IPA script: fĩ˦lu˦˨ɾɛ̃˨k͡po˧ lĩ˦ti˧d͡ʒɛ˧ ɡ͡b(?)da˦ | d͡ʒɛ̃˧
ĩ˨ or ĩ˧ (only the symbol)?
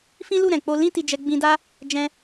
ĩ˧